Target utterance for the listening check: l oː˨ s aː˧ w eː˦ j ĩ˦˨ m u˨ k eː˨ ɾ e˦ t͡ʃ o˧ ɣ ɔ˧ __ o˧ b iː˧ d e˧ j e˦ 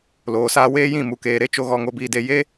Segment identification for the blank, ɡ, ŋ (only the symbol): ŋ